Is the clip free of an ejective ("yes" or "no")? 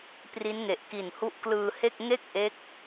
yes